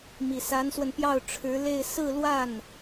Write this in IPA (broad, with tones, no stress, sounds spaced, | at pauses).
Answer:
m i˨˩ s a˧˥ n s w ə˧ n p j ɑ˥˩ ʊ̯ ʈ͡ʂʰ ɻ̩˧˥ l e˥˧ ɪ̯ s ɹ̩˥˧ l w a˥˩ n